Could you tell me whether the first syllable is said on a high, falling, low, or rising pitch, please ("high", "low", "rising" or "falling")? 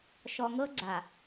low